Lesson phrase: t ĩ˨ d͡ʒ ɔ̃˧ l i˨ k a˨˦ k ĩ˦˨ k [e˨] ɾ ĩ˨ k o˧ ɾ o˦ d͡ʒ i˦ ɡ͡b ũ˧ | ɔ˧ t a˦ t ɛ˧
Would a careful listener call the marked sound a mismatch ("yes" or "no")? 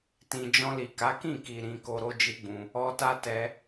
yes